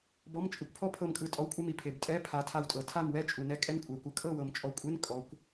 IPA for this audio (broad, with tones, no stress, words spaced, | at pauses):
bɔ˧˥˧mt͡ʃʼɯ˨˦kʷpʰɔ˥ pʰɤ˥˨mkʼɯ˧˥˧ tʼɔ˧˥˧wkʷʼe˥mi˨˩pʰe˨˩b tʼɛ˧˥˧pʰa˨˦ tʰa˥˨wtʼɤ˧˩˧ tʰa˥˨m wɛ˥t͡ʃʼu˨˩nɛ˥˨ kʼɛ˥nkʷʼɛ˨˩kʷɯ˨˦ kʼɤ˥˨wɤ˨˩mt͡ʃʼɔ˨˦kʷʼe˧˥˧n kʼɔ˨˦kʷ